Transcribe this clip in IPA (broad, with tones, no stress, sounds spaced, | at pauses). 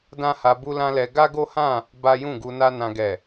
d ã˦ h a˧ b u˦ l ã˦ l ɛ˧ ɡ a˦ ɡ o˦ h ã˦˨ | b a˦ j ũ˦˨ ɡ u˧ n a˦ n ã˧ ɡ ɛ˨